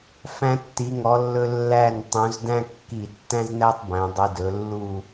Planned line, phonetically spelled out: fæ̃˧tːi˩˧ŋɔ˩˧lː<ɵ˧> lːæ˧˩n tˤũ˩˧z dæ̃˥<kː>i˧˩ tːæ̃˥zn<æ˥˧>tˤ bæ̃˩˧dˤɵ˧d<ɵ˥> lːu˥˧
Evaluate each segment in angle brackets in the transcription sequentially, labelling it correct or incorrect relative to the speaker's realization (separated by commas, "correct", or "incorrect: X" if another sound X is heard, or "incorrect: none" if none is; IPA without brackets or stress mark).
correct, correct, incorrect: æ˥, incorrect: ɵ˩˧